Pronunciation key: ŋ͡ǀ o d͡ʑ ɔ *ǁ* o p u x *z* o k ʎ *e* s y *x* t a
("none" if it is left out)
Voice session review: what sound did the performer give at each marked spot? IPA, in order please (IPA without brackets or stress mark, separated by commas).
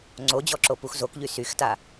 ǁ, z, y, x